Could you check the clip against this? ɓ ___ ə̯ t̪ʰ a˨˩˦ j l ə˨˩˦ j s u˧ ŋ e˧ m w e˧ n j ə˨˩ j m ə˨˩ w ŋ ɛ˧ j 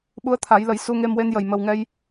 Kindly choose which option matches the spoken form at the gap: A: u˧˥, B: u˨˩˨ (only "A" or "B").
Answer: A